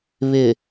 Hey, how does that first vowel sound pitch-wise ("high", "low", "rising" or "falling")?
low